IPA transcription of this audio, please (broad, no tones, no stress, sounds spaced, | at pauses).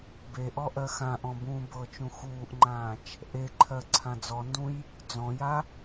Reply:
b e ʔ ɔ ʔ ɜ x ã ʔ ɔ̃ b ũː b ɤ t͡ʃ ũ x uː ʔ ŋ͡ǃ ãː t͡ʃ | ʔ e ǃʰ ɜ ǀʰ ã d͡z ɔ n d ũ j | d͡z ɔ̃ j a